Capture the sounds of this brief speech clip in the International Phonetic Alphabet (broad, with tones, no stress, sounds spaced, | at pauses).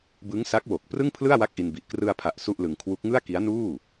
b ɯ˦˥ ŋ s a˦˥ k̚ w o˨˩ k̚ p r ɯ˥˩ ŋ pʰ l ɯ˥˩ a̯ w a˥˩ k̚ ʔ i˧ n b i˨˩ ʔ k r ɯ˧ a̯ pʰ a˨˩ ʔ s u˥˩ ʔ l ɯ˧ ŋ kʰ w u˦˥ k̚ ŋ ɯ˥˩ a̯ k i˦˥ a̯ n uː˥˩